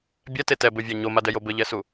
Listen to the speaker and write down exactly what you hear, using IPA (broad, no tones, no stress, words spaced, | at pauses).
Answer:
bʲɛte tɛbɘvʲa ɲomadɛjo bɘʎɛsu